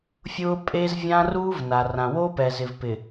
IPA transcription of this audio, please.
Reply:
fʲ ʊː˦ pʼ e˦ z vʲ ã˦ r uː˦ v n a˨ r ã˨ w oː˦ p ɛː˨ z ɪ˨ v p ɪ˨

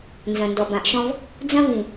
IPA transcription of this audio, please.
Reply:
n z ɐ̃˨ n d ɔ˨ b ã˨ ʔ ʃ ɔ̃˦ v | d͡z ɐ̃˦ v ĩ˨

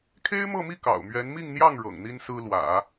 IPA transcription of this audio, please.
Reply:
kʰ e˥ ɪ̯ m ɤ˥˧ m i˥˩ k ɑ̰˨˩ ʊ̯ m ɥ ɛ˧˥ n m i˥˧ ŋ n̪ j ɑ˥˩ ŋ ɻ ɤ̰˨˩ ŋ n̪ i˥ n s ɹ̩˥ l w ä̰˨˩˦

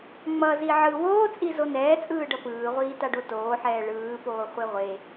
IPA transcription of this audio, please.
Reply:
ŋ͡m ʌ z i ʕ ɯ w oː t͡sʼ i z o n ɛː t͡sʼ ɯː ɖ ʌ p ɯː ʁʷ iː t a ɖ o t oː ħ ɛː ɭ ɯː p oː χʷ e ʁʷ e

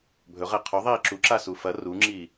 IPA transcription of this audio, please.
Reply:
bʱ ɵ ʁ e qʰ o ðˤ iː ǁ u ǁ a s u f ɐ r u ŋ͡ǁ iː

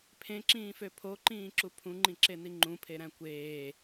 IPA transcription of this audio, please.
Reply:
pʰ ẽ ǁ ĩː f ø pʰ o ǃ ĩː ǁ u pʰ ũ ŋ͡ǃ ĩ ǁ e n i ŋ͡ǃ ũ pʰ e ɾ æ̃ kʷ eː

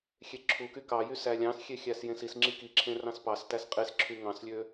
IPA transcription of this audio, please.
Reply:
xʲ e ǁʰ u k y k ɑ j y s æ lʲ ɑ̃ s xʲ e xʲ æ s j ẽ s i s ŋ͡ǁ i k i ǁʰ ẽ r ɑ̃ s p ɑ s t æ s qʼ e s ǁʰ y ŋ ɑ̃ s lʲ ø

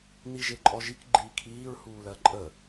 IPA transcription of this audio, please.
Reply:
n i ʒ e ǃʼ ɔ ʒ i k ɡ͡ǃ iː kʰ iː ɹ h uː l ɜ ǃʼ ə

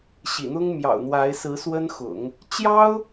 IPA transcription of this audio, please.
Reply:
ɕ ḭ˨˩ n̪ ʊ˥ ŋ m j ɑ̰˨˩ ʊ̯ n̪ w a˧˥ ɪ̯ s ɹ̩˧˥ s w ə˥ n x ʊ̰˨˩˦ ŋ | t͡ɕ j ɑ˥ ʊ̯

